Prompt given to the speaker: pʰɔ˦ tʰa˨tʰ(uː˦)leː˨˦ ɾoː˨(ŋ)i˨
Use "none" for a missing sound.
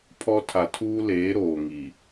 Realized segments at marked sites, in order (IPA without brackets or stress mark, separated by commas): uː˦, ŋ